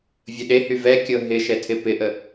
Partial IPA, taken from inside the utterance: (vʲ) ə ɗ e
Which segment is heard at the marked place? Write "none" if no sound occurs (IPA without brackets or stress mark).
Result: vʲ